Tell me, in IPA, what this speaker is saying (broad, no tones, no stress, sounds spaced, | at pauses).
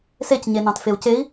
s e c ɲ e n ɑ̃ t f e u̯ c e i̯